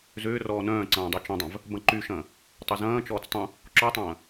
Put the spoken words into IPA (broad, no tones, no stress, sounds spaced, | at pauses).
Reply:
z ʏː r ɔː n œ̃ː ǀ ɐ̃ː dˤ y t͡ʃ ɐ̃ dˤ œ̃ v | b ɐ̃ ǃ y ʃ ɐ̃ː | tˤ ɐ z ɐ̃ː t͡ʃ ɔː t͡s tˤ ũ | ǁ ɔ tˤ ɐ̃ː